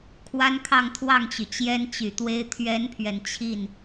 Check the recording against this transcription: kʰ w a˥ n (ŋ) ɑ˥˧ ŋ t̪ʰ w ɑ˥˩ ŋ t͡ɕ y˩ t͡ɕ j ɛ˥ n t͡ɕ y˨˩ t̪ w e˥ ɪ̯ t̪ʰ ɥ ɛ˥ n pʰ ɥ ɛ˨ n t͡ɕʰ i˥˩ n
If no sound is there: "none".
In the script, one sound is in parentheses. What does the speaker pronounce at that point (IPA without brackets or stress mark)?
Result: kʰ